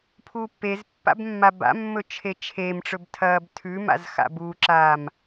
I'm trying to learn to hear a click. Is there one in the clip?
yes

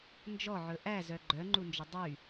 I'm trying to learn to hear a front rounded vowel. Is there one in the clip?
yes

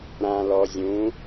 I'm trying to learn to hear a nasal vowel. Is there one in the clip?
yes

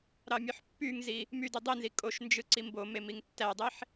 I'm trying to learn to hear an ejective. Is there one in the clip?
yes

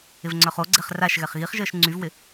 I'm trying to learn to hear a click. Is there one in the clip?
yes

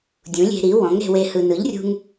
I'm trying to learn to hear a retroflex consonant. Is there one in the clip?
no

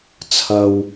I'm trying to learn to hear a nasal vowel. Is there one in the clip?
no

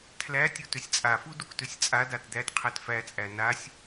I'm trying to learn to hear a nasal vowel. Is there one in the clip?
no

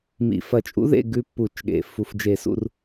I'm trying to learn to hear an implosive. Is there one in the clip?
yes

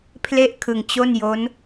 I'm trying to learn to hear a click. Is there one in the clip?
no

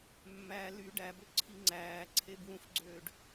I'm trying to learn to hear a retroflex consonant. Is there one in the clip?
yes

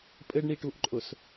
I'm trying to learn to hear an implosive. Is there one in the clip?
no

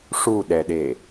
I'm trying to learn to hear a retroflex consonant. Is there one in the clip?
yes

